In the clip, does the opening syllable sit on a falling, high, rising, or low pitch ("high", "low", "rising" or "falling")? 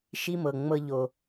high